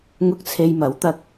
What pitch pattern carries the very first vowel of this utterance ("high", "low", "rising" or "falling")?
high